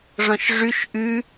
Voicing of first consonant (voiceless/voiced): voiced